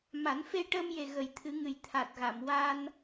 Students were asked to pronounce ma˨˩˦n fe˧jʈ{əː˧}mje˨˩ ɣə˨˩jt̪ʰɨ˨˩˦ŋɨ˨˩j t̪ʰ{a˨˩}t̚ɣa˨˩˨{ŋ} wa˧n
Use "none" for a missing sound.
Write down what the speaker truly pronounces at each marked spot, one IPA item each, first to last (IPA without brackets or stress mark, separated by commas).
əː˧, a˨˩, m